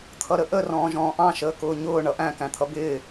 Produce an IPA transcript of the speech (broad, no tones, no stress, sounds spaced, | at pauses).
t̪ʰ ʌ ɾ ə ʔ ə r ɔ̃ː ʒ ɔ̃ː ʔ ɑ̃ ʃ əː k ʊː ɲ ʊː ɳ ʌ ʔ æ̃ k æ̃ t̪ʰ ʌ b ɪː